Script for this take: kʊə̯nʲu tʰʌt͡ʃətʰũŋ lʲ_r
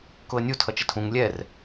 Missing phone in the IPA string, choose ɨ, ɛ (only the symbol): ɛ